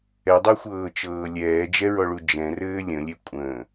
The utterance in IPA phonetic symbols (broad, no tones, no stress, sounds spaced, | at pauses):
ɛ dˤ e xʷ ɤː t͡ʃ ɤː lʲ ɛː d͡ʒ ɛ ɹ ɔ ɭ u d͡ʒ ɛ̃ r ɘː lʲ ə̃ lʲ e kʷʼ ə̃ː